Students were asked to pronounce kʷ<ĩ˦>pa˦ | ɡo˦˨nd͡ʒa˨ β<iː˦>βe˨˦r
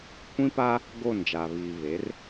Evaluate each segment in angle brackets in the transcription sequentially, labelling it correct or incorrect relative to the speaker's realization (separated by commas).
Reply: correct, incorrect